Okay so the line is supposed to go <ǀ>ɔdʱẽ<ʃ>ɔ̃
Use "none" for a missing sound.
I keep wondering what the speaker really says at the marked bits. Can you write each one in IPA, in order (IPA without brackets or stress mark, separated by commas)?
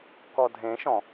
k, ʃ